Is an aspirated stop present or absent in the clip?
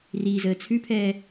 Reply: present